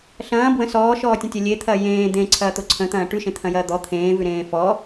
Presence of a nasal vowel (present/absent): present